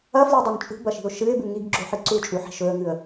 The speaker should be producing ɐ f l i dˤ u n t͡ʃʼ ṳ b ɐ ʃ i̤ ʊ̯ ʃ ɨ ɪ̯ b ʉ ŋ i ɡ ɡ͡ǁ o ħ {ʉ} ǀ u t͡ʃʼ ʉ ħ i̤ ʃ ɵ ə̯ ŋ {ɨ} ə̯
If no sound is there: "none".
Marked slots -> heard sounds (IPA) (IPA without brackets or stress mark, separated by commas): ɨ, ɨ